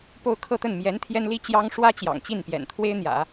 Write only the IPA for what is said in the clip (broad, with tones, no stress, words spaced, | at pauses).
po˥˧ʊ̯ kʰɤ˥˧t̪ə˥˩n mjɛ˧˥n t̪ʰjɛ˥nli˥t͡ɕjɑ˥ŋ ʂwä˥ t͡ɕjɑ̰˨˩ŋt͡ɕi˥˩npjɛ̰˨˩n t̪ʰwe˥ɪ̯n̪jä̰˨˩˦